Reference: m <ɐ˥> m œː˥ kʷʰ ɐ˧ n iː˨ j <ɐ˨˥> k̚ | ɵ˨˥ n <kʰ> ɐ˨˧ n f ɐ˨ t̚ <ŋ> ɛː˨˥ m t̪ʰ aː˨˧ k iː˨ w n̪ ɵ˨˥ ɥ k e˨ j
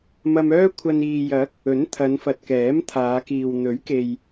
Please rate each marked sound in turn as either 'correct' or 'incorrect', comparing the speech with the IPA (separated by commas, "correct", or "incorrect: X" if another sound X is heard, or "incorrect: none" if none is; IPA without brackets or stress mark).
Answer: incorrect: ɐ˧, correct, incorrect: t̪ʰ, incorrect: k